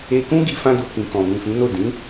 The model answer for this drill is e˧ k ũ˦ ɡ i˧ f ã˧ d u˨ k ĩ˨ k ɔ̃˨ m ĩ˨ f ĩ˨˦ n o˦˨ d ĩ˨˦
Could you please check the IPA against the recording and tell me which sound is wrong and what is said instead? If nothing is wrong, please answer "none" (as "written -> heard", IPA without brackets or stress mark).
none